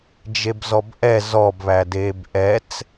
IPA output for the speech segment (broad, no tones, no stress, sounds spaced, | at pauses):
d͡ʒ e b z ɔ b ʔ ɛ z ɔ b β æ d eː b ʔ ɛ t͡s